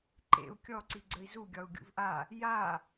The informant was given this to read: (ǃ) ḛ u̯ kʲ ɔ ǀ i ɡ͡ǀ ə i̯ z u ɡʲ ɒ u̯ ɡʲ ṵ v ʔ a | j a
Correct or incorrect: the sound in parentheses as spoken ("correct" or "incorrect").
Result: correct